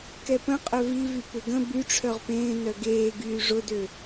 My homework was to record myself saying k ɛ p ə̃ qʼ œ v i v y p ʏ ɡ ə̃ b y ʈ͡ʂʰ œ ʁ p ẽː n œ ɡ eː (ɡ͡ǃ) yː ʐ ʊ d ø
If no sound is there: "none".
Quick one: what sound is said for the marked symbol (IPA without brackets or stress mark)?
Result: ɡ